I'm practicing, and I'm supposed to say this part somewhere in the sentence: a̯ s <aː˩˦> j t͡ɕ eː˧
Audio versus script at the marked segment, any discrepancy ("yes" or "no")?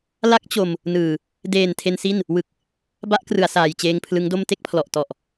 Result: yes